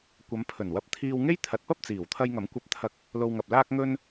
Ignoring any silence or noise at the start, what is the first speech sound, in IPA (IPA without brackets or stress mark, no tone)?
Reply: kʷ